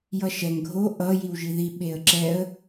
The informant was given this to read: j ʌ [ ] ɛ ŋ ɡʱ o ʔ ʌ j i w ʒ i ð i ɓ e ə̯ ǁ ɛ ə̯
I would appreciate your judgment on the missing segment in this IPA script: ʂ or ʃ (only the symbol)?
ʃ